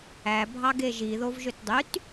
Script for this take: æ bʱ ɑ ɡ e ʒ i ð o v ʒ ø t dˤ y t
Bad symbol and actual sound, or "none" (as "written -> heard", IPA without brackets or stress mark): none